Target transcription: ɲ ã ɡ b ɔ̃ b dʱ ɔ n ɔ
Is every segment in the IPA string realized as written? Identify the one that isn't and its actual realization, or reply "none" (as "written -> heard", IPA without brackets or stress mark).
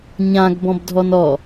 none